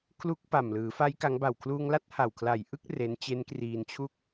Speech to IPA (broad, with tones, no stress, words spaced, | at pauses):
kʰlu˦˥k̚ pa˨˩mlɯː˩˦ fa˦˥j ka˦˥ŋ ba˨˩wkʰluː˧ŋla˥˩t̚ ha˨˩wkʰla˨˩j ʔɯ˥˩k̚ re˦˥n t͡ɕe˦˥nkriː˧nt͡ɕʰu˥˩k̚